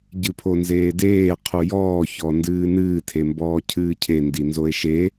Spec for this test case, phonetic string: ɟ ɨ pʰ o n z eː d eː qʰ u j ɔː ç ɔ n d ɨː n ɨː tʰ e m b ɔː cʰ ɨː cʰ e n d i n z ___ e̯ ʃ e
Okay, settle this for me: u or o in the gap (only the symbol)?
o